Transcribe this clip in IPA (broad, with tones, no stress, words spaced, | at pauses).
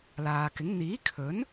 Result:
laː˨kɪ˨˥ŋ n̪iː˨˥kʰɵ˨˥n